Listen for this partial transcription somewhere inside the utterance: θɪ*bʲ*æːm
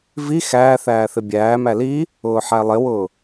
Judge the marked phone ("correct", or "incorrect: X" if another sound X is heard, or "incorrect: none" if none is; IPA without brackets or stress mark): correct